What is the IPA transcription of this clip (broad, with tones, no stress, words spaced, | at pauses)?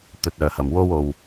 t̪ɵ˨t̚ œː˨˩hɐ˨˩mwo˥wo˨w